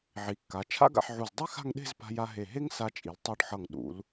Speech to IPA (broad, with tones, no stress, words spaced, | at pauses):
ʕi˩˧kːa˩˧ t͡ʃʰa̰˥ɡa̰˧ħʕu˧˩z dˤi˥xa̤˥˧ŋɗe̤˥˧z pa̤˧ja˧ɦe˧˩ɦe˥ŋ sa˧t͡ʃʼi˩˧ltˤo˧ɖ ħʌ˧˩ŋ ɗṵ˩˧l